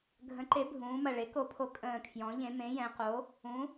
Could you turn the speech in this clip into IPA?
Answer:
ɡʱ ə̃˩˥ ǃ e˩˥ bʱ ũː˩˧ m ɐ˨˩ ɭ e˩˥ k o˩˥ pʰ o˩˥ kʼ ə̃ː˨˩ kʰ j ɔ̃˩˧ ʎ ẽ˩˧ m ẽ˩˥ j ɛ̃˩˧ q o˩˥ | ũ˩˥

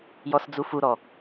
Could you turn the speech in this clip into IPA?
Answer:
j ɔ s d͡z u f u ɾ ɔ

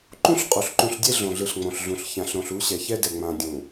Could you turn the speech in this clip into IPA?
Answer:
ǃ ũ˦ ɬ qʼ o˨ ɬ ǃ ũ˨ ɬ dʲ e˦ ɮ õ˨ ɮ ɯ˨ ɬ ŋ͡m õ˨ ɬ ɮ ũ˨ ɬ ç ã˨ ɬ ɾ õ˨ ɬ u˨˦ ɕ ɛ˨ ç ɛ˦ d ɛ˨ ŋ͡m ã˨ dʲ ũ˨

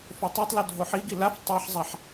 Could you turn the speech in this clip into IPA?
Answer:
f o tˤ a tˤ l o dʱ o ħ i ɡ i l a f tˤ a ħ zˤ a ħ

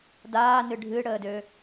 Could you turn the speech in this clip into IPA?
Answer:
d aː n ɨ ɖʱ ɨ ɽ əː d ø

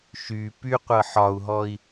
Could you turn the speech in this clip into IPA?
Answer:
ʃ y p y qʷ ɤ ħ ɒ u̯ ɦ ɔ i̯

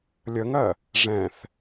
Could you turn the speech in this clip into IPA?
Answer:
lʲ ə ŋ ɜ | ʐ ɛ̃ θ

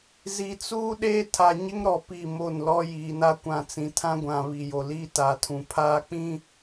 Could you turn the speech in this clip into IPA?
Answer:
z i˨ t͡s uː˦ ɗ eː˦ tʰ a˨ ɲ ɪ˦ ŋ ɾ ɔ˨ p i˦˨ m o˦˨ n l ɔ˦ j iː˨ n a˦ kʷ ã˨ t͡s ĩ˨ tʰ ã˦ ɡʷ ã˨ β i˨ j o˨ l iː˦ t a˨ tʰ ũ˨ pʰ aː˦ k͡p ĩ˦

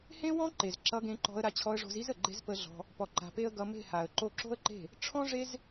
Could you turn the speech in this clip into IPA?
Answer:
h ẽ˦ w ɔ̃˦ ǃ e˨ z ǁ ʌ˧ ɡ ẽ˧ ǃ ɔ̤˧ ə̯ ɾ a˧ t͡ɕʰ ɔ˧ ə̯ ʐ o̤˧ z i˦ z ə˨ ɡ͡ǃ e̤˦ z p ə˧ ɮ ɔ̤˧ | p ɔ˧ ǃ a̤˧ p e˦ ə̯ ɡ ʌ˧ m e̤˦˨ h a˨ ə̯ ǃ o˧ ǁ o̤˦ ə̯ ǃ e̤˦˨ | ʈ͡ʂʰ ɔ̃˦ ʐ e˦ z

